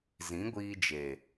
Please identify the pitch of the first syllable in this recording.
rising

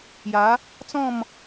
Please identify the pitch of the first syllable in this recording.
rising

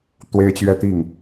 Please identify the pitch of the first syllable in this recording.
high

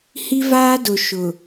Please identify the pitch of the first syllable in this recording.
high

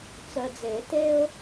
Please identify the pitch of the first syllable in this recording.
low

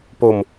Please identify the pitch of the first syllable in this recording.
low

